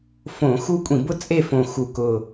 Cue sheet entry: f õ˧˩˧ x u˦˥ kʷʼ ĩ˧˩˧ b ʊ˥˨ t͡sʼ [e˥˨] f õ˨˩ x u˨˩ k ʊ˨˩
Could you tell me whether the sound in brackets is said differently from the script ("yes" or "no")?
no